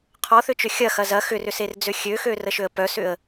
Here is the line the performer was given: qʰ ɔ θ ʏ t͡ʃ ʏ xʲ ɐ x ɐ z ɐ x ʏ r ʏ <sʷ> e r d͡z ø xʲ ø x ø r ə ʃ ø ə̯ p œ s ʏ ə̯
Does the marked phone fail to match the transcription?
yes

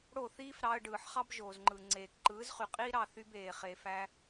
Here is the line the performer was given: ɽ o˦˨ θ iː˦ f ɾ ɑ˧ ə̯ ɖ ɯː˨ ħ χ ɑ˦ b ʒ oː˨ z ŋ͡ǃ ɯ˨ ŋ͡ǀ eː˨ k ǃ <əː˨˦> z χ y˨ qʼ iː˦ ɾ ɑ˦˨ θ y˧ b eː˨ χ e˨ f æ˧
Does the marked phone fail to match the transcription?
yes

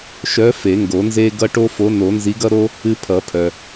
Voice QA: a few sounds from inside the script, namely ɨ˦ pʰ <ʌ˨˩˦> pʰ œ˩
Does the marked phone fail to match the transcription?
no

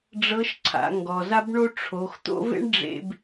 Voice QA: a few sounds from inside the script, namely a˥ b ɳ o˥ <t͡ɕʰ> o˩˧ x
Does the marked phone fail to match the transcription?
yes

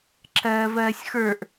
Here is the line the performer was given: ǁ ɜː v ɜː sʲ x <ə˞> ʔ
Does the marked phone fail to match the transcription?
no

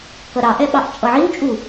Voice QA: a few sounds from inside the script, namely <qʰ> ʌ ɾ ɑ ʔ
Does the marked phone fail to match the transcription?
yes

